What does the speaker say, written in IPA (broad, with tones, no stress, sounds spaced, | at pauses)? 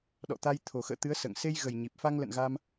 ɗ ɔ̰˧˨ t̪ a˧ j t̪ʰ o˨˩ x ə̰ː˧˨ t̪ ɨ˨˦ ə̯ s ə̰ː˧˨ ŋ s e˧ j ɣ ə˨˩ j ɲ i˨˩ p̚ f a˧ ŋ l ə̰˧˨ n ɣ a˧ m